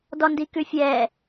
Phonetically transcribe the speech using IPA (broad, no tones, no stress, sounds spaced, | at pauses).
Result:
d ɔ n d i k ʉ fʲ ɛ